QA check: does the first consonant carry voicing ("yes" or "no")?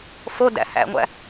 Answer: no